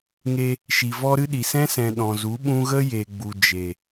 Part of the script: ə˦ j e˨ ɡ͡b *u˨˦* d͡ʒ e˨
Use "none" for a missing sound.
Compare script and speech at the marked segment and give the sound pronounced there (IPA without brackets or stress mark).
u˨